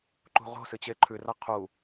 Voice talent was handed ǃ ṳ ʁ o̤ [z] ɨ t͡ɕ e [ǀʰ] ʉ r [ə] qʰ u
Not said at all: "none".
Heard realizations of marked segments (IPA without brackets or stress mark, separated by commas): s, ǃʰ, a